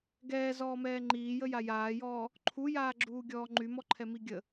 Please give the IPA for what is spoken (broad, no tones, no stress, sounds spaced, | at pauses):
ɡ ɛː z ɔː m ɛː ŋ͡ǃ iː j ə j a j aː j ɔː | ǃʰ u j aː ɡ͡ǁ uː ɡʲ ɔː ŋ͡ǃ y m ɔ ǃʰ ɛ m i ɡʲ ə